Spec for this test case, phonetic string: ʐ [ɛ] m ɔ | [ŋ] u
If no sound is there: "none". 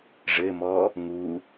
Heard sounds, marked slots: ɘ, ŋ

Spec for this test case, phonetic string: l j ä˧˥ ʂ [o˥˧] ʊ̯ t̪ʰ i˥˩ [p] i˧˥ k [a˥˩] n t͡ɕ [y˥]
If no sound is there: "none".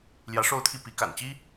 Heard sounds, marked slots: o˥˧, p, a̰˨˩, i˥

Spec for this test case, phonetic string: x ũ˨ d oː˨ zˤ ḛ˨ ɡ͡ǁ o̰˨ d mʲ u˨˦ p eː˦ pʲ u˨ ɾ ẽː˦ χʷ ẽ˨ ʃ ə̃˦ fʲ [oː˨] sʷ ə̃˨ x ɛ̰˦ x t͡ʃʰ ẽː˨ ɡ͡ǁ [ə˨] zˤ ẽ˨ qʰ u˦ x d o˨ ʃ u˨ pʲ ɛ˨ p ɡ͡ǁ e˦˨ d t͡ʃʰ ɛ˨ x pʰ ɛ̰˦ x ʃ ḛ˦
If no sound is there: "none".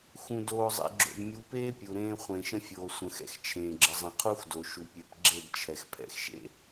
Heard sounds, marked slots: oː˨, ə˨

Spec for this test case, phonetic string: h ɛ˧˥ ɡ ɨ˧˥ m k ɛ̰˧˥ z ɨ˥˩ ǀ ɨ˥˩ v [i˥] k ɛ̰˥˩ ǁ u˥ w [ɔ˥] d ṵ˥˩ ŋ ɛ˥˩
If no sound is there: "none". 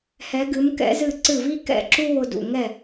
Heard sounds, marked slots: i˥, ʊ˥

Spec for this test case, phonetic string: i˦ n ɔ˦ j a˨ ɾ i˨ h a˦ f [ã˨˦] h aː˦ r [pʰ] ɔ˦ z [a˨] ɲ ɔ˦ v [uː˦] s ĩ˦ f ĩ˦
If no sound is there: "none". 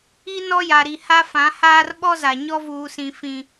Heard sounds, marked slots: ã˨˦, ɓ, a˨, uː˦

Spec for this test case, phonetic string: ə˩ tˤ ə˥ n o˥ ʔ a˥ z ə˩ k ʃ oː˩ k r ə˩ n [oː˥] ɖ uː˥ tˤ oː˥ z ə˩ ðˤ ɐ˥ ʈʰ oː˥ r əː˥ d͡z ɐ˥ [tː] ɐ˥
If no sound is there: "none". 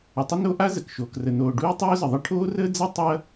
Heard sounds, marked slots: oː˩, tˤ

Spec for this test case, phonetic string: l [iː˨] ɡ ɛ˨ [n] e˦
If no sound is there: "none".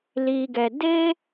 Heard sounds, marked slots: iː˨, d

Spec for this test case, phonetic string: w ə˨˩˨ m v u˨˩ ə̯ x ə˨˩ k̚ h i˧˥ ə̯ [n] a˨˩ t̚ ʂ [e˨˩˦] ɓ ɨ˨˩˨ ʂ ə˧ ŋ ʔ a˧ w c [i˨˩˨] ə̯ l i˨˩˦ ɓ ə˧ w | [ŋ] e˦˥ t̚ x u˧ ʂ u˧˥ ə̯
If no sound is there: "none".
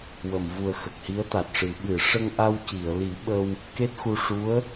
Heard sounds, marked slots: t̪, ɨ˨˩˦, i˨˩˨, k

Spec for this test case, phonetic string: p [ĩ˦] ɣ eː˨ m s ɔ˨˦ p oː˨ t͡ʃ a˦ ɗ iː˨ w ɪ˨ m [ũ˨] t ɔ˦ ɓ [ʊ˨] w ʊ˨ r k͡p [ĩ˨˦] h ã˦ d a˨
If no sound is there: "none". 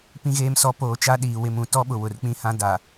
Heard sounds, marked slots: ĩ˨, ũ˨, ʊ˨, ĩ˦

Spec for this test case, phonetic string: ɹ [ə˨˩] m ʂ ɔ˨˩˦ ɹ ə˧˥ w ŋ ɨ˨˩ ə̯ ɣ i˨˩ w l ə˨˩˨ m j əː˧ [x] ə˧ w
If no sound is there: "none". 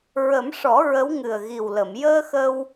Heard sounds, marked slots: ə˨˩˦, x

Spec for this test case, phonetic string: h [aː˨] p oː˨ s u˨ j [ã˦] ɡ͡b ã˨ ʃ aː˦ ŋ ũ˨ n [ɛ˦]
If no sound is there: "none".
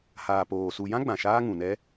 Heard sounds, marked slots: aː˨, ã˦, ɛ˦

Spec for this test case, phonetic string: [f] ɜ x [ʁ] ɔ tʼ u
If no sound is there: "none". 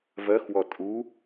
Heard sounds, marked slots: v, w

